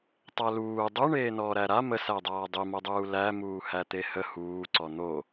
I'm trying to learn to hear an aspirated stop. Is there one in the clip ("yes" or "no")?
no